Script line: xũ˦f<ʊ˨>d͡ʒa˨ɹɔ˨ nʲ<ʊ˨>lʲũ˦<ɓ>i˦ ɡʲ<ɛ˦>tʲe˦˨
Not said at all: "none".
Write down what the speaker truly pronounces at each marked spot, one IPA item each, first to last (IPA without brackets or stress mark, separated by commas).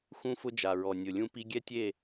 ʊ˦, ʊ˨, p, ɛ˦